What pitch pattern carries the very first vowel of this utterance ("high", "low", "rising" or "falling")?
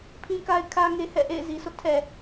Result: high